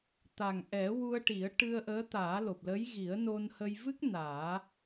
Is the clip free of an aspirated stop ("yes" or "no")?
yes